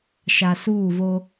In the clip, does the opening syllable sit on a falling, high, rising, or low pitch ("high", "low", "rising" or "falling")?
low